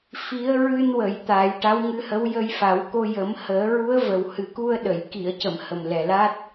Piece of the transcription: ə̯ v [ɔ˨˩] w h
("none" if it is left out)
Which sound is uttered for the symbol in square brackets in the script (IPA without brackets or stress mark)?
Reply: ə˨˩